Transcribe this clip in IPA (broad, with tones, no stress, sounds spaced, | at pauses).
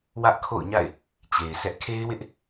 w ä˦ ʔ kʰ o̰˦˨ ʊ̯ ɲ a̰˦˨ ɪ̯ | t͡ɕ e˨ ɪ̯ s ɛ˦ ʔ kʰ e˦ ɪ̯ w ɪ˦ ʔ